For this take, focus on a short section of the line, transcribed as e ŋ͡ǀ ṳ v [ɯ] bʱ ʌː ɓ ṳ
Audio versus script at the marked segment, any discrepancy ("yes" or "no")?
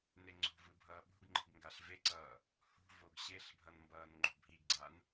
no